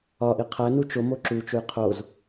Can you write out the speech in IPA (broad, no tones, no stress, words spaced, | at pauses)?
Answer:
ɒʔi qʰænu t͡ʃomo ǁut͡ʃuj qʰoz